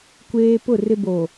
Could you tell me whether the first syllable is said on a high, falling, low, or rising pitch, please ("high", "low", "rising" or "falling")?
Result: high